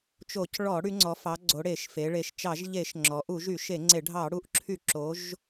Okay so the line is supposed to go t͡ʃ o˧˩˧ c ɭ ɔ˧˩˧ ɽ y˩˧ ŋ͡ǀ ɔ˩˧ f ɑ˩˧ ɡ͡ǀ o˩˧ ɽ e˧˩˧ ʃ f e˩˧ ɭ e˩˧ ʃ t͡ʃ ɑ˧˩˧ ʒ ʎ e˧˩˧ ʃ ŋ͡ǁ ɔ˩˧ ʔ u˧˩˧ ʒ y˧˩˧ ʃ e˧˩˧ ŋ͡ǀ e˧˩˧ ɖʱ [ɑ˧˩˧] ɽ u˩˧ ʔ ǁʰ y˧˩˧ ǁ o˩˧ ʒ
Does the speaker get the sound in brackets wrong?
no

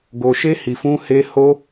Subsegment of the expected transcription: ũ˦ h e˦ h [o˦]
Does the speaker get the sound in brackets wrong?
no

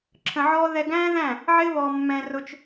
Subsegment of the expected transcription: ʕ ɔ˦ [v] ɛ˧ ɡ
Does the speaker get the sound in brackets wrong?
yes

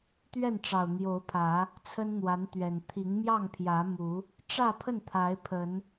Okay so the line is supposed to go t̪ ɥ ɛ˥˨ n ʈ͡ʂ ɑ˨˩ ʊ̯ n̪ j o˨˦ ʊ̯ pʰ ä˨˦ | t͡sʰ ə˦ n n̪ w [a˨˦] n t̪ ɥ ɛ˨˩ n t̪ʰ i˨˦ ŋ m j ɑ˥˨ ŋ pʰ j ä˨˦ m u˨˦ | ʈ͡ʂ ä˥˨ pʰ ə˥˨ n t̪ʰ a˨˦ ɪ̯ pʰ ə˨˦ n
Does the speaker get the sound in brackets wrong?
no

